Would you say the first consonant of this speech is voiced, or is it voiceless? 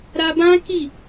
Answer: voiced